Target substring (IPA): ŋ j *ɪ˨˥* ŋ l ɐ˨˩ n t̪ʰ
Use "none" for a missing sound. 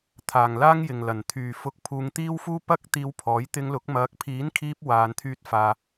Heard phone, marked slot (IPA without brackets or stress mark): ɪ˨